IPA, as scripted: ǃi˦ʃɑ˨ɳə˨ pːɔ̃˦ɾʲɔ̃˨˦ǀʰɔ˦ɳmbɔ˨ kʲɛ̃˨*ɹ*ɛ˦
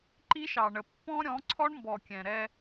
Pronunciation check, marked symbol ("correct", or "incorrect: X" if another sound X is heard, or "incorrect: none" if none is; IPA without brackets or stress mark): incorrect: ɾ